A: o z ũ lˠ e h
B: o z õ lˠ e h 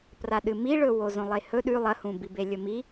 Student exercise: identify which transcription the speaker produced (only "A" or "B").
B